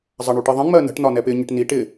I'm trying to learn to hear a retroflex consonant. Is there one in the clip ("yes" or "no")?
yes